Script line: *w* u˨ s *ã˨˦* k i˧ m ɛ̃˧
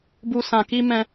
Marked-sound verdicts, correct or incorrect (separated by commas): incorrect, incorrect